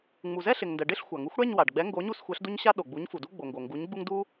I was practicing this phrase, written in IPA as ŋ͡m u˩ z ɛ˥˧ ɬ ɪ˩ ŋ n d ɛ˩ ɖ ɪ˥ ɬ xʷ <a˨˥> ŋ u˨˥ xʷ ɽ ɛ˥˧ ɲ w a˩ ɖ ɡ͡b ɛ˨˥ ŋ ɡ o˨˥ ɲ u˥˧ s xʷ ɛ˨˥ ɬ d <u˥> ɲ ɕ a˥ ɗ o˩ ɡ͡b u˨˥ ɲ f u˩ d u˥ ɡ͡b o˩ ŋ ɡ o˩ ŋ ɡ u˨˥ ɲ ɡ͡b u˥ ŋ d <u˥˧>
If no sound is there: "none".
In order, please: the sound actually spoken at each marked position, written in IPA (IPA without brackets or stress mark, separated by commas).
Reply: a˩, u˥, u˥